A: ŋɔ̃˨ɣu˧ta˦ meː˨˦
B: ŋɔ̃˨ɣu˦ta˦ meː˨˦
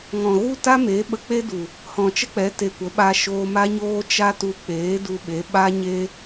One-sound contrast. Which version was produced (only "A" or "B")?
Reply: B